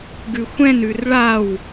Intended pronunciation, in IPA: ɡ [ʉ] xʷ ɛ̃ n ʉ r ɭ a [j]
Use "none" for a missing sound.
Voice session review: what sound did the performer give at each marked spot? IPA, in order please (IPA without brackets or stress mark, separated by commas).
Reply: ʉ, w